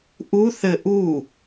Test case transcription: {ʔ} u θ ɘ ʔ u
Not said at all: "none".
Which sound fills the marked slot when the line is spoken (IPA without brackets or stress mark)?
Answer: ʔ